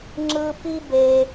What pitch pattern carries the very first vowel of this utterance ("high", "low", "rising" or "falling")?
low